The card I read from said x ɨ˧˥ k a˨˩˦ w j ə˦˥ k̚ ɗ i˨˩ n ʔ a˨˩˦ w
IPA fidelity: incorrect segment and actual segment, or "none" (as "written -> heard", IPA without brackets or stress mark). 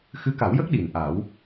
none